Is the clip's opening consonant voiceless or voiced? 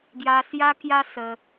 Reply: voiced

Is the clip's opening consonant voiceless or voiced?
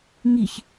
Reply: voiced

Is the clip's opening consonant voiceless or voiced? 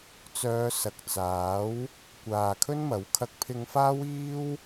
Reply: voiceless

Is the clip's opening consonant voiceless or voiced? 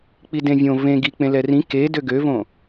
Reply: voiceless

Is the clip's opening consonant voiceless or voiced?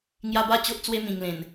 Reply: voiced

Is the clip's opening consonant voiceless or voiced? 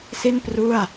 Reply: voiceless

